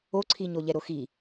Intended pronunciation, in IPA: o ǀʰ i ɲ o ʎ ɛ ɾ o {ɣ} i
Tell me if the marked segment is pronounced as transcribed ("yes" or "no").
no